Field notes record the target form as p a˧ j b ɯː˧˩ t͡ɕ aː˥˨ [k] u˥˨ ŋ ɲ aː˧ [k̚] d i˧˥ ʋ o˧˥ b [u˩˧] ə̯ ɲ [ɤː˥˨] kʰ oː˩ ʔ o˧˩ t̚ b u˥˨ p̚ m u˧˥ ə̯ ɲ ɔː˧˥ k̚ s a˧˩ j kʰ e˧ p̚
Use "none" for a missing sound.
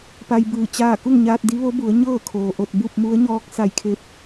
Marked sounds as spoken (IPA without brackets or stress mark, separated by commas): k, t̚, u˩˧, ɤː˥˨